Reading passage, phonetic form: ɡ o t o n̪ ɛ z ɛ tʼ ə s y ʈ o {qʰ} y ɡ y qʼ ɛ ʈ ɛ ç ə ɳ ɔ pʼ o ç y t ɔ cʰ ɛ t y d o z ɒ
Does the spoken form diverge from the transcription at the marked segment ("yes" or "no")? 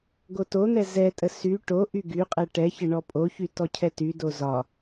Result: yes